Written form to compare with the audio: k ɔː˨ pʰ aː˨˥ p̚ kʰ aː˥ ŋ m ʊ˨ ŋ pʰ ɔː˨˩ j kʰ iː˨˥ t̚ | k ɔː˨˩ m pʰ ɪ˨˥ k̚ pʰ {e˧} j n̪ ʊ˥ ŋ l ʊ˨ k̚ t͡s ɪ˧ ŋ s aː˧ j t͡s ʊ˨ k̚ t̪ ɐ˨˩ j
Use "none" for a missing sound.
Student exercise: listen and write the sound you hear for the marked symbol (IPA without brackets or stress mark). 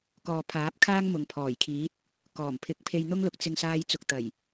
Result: e˧